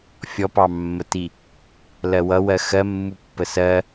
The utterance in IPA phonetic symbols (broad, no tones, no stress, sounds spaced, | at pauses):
fʲ ɔ p ɑ mː ə t i | l ɜ w ʌ w ɜ x ɜ mː u pː ə s ɜ